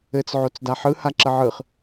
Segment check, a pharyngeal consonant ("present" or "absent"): present